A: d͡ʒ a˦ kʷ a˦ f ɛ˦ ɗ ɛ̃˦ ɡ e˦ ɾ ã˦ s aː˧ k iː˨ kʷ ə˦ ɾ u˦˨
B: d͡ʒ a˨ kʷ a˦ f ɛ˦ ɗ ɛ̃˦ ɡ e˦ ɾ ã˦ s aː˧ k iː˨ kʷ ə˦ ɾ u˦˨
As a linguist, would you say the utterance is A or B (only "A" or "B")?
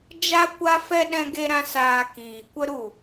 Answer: A